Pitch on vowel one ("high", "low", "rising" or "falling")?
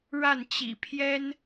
falling